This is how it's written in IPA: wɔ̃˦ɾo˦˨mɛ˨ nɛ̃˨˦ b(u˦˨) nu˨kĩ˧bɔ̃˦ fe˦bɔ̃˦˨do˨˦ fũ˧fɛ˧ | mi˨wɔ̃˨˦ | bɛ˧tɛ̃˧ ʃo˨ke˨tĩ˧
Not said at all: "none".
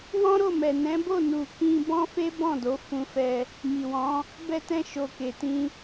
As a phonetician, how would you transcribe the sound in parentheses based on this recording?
o˦˨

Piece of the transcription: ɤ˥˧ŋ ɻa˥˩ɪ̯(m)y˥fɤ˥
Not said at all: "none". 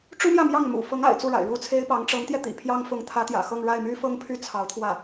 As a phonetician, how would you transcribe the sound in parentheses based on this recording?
m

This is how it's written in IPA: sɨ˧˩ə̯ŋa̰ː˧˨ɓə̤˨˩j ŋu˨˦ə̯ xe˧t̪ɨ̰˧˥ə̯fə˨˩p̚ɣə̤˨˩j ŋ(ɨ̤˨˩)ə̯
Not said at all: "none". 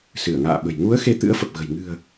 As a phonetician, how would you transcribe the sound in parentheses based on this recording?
ɨ̤˨˩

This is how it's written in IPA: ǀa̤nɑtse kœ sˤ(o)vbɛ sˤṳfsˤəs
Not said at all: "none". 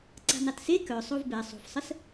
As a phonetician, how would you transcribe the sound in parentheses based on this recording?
o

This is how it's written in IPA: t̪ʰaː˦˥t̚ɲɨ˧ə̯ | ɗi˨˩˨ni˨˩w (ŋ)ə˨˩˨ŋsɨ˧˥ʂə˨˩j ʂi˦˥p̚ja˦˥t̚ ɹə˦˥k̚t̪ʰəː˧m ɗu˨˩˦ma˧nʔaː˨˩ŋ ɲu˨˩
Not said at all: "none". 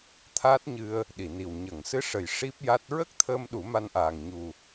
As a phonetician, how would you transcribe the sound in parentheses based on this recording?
ɲ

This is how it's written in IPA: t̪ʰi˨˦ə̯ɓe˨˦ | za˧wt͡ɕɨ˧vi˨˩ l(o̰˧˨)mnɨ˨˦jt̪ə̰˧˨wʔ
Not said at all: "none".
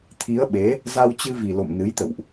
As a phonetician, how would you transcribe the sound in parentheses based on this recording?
o̰˧˨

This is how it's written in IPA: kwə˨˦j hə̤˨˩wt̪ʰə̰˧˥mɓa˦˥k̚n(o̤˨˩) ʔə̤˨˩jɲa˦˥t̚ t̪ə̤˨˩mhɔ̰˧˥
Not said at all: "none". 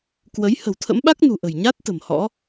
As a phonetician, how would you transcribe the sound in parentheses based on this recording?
ṳ˨˩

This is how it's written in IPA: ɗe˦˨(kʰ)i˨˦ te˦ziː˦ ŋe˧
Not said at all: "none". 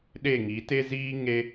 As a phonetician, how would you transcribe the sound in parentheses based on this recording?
ŋ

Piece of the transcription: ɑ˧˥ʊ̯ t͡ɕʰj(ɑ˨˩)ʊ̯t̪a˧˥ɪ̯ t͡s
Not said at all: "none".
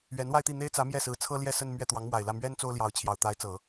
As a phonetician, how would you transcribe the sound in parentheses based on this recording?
ɑ˨˩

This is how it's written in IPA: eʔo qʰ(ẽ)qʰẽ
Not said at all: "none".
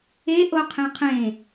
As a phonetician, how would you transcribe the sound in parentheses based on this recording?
ẽ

